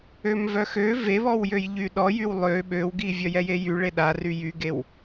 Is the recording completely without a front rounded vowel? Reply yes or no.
no